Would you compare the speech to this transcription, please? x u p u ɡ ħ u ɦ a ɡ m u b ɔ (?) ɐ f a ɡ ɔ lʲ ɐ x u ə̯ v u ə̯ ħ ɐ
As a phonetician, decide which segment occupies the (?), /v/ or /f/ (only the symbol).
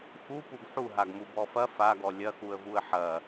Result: f